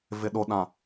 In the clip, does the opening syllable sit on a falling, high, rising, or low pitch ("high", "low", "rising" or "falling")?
low